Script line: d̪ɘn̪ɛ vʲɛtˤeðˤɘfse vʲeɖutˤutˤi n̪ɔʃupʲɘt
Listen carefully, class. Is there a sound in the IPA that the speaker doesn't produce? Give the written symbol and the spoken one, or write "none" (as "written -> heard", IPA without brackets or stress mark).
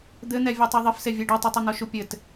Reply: none